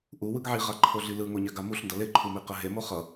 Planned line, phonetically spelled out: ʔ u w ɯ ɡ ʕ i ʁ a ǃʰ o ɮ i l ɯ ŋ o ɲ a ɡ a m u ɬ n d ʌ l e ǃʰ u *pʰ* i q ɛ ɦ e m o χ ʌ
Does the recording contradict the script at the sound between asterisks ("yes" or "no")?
yes